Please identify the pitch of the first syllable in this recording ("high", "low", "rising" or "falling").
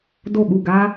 falling